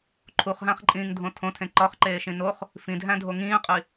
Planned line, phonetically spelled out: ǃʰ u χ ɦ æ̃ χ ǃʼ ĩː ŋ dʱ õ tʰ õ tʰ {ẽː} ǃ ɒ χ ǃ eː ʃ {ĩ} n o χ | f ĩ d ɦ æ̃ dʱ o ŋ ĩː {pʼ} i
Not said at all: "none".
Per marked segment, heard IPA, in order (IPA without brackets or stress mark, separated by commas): ẽ, ĩ, qʼ